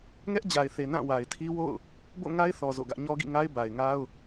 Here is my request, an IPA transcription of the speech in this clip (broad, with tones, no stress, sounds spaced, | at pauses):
ŋ ɛ˦ ʔ d͡ʑ a˨ ɪ̯ θ e˨ n ã˦˨ w a˨ ɪ̯ tʰ i˦ w o̰˦˨ ʊ̯ | b o̰˦˨ ŋ a˦ ɪ̯ θ ɔ˨ z o̰˦˨ ɡ ä˦ ʔ ɲ ɔ˦ ɡ ḭ˦˨ ŋ a˦ ɪ̯ b a˨ ɪ̯ ŋ a˦ ʊ̯